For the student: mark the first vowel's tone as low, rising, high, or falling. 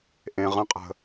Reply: low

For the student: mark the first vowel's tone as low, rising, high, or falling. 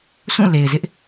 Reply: falling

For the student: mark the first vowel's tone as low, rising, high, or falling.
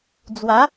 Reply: rising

